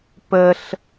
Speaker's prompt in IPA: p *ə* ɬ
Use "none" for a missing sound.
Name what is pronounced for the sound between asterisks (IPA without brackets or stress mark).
ə